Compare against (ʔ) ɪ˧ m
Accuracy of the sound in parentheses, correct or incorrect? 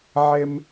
incorrect